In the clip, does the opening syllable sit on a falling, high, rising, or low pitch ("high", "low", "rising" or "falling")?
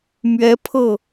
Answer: rising